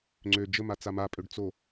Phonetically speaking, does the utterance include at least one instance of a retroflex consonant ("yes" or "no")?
yes